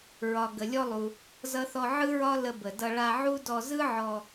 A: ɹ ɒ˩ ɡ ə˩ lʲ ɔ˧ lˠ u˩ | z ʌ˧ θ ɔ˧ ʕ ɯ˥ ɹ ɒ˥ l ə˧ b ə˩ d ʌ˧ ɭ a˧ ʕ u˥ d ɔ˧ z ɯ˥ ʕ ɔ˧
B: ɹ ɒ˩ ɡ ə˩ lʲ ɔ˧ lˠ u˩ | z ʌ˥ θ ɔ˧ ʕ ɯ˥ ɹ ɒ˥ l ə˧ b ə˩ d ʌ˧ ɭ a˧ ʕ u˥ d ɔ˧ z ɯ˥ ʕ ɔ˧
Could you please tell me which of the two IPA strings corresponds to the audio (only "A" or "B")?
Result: A